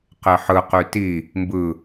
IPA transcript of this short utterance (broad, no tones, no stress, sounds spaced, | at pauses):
q e ħ ɯ q y t i | m b ɯ